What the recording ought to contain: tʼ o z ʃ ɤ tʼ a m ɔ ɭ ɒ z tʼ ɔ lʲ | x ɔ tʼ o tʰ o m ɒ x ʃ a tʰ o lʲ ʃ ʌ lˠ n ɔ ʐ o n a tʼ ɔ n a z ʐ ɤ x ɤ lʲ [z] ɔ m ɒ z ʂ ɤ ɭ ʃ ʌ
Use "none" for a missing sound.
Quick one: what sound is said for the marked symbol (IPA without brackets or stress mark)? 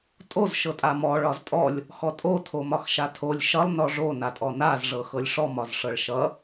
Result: ʂ